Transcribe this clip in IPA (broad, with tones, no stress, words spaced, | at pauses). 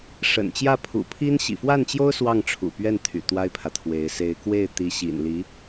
ʂə̰˨˩nt͡ɕjä˥˩ pʰṵ˨˩pʰi˥n ɕḭ˨˩fwa˥˩nt͡ɕjo˥ʊ̯ swɑ˥˩ŋʈ͡ʂʰṵ˨˩pɥɛ˥˩nt̪ʰy̰˨˩ t̪wa˥ɪ̯pʰä˨t̪ʰwe˧˥ɪ̯ se˧˥ɪ̯kwe˥˩ɪ̯ t̪i˧˥ɕḭ˨˩nli˧˥